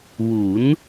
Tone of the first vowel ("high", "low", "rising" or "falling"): rising